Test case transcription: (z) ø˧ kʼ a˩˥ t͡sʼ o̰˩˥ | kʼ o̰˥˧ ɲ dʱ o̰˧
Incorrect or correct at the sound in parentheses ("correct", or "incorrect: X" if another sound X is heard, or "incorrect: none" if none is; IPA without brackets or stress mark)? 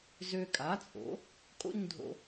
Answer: correct